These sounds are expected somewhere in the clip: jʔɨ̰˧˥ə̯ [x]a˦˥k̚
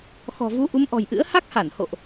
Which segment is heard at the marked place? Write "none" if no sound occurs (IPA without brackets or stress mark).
h